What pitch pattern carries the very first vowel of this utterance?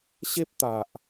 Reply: high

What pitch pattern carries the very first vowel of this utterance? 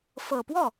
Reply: low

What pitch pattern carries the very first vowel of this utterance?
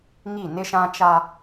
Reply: falling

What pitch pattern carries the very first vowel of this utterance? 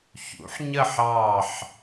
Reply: rising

